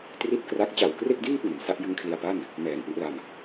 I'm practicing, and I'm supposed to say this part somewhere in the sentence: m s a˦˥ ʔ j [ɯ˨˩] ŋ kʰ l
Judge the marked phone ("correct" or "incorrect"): incorrect